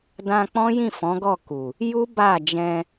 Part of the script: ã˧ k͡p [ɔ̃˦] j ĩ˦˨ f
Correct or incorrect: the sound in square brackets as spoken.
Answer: correct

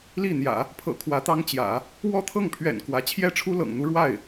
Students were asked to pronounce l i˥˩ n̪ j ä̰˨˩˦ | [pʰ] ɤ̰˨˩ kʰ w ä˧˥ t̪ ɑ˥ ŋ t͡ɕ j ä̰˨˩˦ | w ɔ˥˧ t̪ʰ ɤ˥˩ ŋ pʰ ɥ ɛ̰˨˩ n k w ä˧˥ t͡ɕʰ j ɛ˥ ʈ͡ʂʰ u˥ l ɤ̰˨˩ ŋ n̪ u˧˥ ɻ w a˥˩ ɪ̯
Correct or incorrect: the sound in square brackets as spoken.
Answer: correct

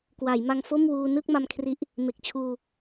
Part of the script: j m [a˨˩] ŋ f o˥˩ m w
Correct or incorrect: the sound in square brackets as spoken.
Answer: incorrect: a˧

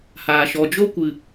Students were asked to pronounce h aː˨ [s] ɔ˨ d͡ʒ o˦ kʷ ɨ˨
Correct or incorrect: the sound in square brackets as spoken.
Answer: incorrect: ʃ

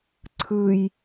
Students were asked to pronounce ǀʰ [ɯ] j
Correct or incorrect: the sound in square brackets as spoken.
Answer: correct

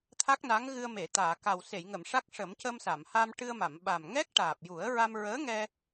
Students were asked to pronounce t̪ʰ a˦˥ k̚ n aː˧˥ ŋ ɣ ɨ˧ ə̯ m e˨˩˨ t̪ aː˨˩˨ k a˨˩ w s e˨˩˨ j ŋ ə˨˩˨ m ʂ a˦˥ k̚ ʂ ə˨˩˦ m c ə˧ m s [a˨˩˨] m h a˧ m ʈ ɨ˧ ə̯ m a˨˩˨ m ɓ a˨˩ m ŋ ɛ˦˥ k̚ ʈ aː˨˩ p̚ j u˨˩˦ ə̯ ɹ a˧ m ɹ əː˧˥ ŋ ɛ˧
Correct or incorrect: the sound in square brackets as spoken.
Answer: correct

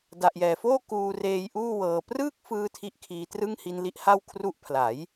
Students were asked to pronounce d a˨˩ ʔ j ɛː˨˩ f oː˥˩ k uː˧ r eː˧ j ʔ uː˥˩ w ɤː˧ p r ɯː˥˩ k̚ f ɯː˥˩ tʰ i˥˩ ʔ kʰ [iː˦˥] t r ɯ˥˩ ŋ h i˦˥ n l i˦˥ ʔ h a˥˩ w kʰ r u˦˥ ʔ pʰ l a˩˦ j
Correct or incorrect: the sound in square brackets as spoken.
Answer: correct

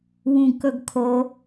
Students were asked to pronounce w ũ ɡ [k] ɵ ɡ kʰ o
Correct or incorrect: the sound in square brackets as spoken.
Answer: correct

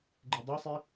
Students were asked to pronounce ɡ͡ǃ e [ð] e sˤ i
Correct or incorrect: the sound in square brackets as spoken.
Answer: incorrect: dˤ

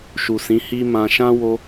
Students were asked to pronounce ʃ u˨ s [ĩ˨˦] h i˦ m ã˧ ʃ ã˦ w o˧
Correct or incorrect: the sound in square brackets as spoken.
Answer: correct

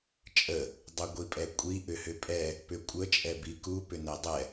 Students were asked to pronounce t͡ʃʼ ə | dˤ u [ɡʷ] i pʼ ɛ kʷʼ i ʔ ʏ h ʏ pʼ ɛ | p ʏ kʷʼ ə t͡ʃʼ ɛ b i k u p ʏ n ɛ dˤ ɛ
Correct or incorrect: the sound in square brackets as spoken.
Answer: correct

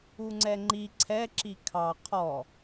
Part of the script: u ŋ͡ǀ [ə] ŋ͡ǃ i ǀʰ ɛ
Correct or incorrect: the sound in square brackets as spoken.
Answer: incorrect: ɛ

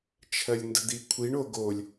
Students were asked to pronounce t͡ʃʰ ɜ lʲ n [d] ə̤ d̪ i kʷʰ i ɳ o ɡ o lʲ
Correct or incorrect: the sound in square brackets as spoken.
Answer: correct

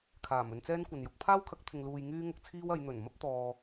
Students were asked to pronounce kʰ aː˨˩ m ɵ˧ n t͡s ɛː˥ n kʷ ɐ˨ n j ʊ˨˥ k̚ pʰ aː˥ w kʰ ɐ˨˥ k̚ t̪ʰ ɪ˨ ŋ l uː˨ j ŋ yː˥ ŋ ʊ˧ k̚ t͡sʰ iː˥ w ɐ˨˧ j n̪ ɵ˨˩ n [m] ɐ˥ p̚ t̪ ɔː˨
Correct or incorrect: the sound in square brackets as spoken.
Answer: correct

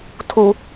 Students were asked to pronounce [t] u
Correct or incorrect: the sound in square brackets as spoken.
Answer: incorrect: tʰ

